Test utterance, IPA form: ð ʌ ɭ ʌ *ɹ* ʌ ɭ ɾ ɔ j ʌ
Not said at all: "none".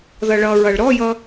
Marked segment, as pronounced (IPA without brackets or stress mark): ɹ